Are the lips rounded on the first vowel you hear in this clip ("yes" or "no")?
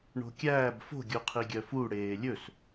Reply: yes